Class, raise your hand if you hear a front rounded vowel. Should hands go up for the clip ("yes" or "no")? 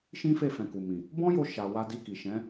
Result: no